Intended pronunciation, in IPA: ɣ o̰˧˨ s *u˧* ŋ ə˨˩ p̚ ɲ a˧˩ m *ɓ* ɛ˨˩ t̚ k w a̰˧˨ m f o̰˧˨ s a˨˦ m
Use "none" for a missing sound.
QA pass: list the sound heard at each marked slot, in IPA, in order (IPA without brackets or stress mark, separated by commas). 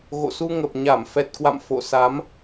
u˧, f